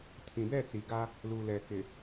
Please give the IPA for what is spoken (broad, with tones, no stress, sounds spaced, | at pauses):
tʰ ĩ˨ b ɛ˦˨ t͡s i˨ ɡ a˦ | l u˨ l ɛ˨ k ɪ˨